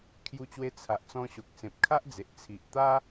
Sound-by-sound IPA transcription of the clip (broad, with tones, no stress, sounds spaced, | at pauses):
kʰ j u˧ t͡ɕ w e˧ t͡sʰ a˨ ʔ t͡s ɔ̃˧ ɕ o˨ k̚ s ẽ˨ p̚ kʰ a˦ ʔ d͡z e˨ ʔ t͡sʰ i˨ ʔ t̪ a˦